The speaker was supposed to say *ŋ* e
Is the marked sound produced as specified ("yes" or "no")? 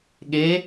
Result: no